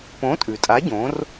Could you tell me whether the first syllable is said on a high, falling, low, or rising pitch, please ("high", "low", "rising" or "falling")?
rising